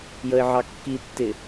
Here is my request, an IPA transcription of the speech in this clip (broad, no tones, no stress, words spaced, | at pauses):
jəɪ̯ʕɑkːitːɪ